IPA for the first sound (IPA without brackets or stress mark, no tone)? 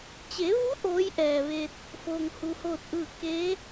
t͡ɕ